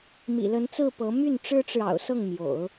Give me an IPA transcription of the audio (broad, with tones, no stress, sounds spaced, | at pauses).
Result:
m ḭ˨˩ l ə˧˥ n t͡s ɹ̩˥˩ p ɤ˧˥ m y˥˩ n ʈ͡ʂ ɻ̩˥ ʈ͡ʂ ɻ̩˨ ɑ̰˨˩ ʊ̯ s ɤ˥˩ ŋ m j o̰˨˩˦ ʊ̯